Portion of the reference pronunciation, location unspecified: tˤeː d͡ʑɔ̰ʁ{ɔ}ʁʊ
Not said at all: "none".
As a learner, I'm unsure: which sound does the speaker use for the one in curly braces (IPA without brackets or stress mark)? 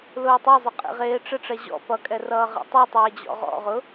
ɔ̰